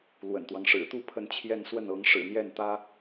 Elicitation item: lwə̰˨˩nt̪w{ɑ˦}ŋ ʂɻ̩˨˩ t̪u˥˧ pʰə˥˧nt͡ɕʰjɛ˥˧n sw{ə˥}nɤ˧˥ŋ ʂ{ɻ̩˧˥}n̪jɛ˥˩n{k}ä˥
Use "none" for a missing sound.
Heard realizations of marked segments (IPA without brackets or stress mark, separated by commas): ɑ˦, ə˥˩, ɻ̩˨˩, t̪